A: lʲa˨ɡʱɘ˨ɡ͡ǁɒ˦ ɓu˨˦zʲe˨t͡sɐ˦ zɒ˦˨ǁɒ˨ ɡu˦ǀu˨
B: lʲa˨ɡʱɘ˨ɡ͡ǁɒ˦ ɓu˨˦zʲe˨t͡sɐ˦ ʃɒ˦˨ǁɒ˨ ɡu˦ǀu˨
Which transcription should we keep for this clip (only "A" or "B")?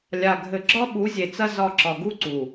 A